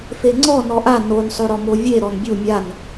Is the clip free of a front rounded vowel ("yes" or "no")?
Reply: yes